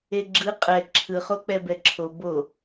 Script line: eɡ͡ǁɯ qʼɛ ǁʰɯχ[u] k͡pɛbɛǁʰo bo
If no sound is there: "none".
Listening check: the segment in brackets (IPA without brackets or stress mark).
o